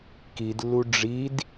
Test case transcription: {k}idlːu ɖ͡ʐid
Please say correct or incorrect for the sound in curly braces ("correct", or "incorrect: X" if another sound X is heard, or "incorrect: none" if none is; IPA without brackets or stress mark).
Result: correct